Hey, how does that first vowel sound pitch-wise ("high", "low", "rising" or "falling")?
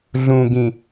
low